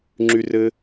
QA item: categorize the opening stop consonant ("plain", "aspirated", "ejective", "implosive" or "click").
click